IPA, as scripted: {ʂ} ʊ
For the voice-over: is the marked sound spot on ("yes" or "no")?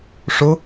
yes